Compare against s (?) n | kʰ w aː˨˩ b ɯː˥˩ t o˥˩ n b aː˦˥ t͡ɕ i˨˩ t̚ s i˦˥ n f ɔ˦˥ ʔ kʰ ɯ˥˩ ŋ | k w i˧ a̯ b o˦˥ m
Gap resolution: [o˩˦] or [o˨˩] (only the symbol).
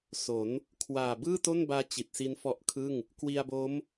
o˩˦